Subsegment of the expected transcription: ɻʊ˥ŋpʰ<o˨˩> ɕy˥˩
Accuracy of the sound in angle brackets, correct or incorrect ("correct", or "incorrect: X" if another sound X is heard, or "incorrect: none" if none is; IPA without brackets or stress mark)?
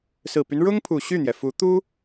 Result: incorrect: u˨˩